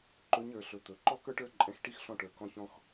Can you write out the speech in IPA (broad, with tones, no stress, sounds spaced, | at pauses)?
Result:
ǃ ɵ˧˥ ɲ ə˞˩˧ ɬ ɵ˩˧ t̪ ɵ˩ ǃ ɔ˥ k ə˞˥ ʈ ə˞˧˥ ǃʼ ɛ̃˧ x ʈ i˥ x ɬ ɔ̃˧ ʈ ə˞˩ k ɔ̃˧ ç ɔ̃˧ x